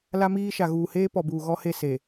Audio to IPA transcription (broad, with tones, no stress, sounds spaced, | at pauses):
l a˦ m iː˦ ʃ a˨ ɣ uː˨ h eː˦ p ɔ˨ b uː˨ ɣ ɔ˦ h e˦˨ s e˨